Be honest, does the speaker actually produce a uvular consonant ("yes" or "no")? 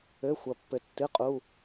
yes